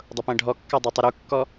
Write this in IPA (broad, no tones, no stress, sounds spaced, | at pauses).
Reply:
dˤ ʊ p ɛ̃ ɖʱ ɔ kː a dˤ ɛ tˤ u ɾ u kː ɔ